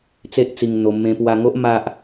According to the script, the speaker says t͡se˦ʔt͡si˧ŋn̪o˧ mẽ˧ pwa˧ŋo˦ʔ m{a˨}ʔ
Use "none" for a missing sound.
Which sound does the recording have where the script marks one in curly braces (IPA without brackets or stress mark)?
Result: a˦